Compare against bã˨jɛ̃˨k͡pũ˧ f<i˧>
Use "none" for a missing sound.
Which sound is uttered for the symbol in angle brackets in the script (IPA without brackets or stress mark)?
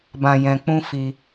i˧